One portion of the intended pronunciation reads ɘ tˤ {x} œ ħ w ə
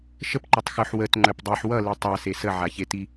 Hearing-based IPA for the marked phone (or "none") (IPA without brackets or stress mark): x